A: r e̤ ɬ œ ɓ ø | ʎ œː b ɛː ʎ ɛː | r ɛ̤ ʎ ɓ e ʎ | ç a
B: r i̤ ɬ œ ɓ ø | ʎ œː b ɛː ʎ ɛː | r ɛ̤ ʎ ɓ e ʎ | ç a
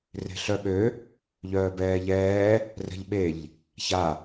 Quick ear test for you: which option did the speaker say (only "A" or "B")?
A